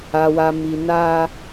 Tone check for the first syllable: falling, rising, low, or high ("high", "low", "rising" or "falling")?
low